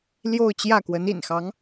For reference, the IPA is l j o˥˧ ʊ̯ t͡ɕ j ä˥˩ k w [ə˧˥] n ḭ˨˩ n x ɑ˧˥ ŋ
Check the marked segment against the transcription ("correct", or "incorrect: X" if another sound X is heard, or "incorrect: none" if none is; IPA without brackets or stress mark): correct